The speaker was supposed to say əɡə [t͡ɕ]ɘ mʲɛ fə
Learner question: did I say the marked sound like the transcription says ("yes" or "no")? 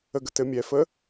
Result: no